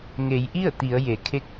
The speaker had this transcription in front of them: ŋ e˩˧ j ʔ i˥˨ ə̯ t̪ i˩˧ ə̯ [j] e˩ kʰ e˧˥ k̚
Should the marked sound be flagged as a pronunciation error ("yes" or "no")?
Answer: no